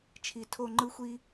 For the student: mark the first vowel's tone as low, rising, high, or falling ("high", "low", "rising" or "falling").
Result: low